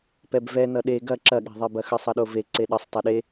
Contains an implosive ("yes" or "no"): yes